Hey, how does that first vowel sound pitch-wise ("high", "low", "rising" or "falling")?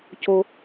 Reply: low